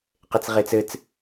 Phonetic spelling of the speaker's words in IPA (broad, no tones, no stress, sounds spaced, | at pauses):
q e t͡s ʁ e t͡s ɘ t͡s